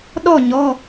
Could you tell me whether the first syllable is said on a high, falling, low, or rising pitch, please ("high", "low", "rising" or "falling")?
falling